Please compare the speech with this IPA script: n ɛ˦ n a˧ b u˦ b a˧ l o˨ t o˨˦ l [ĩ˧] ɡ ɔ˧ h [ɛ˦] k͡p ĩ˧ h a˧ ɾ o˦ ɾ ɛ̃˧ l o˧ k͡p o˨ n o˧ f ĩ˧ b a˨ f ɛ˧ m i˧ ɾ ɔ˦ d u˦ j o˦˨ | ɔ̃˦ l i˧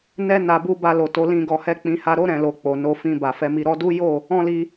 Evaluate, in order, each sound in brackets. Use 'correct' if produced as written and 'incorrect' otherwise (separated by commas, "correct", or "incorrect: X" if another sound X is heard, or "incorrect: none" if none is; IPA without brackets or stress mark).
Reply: correct, correct